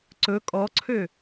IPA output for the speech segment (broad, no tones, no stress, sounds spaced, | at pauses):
ǀ ɵ kʼ ɔ ǀʰ ø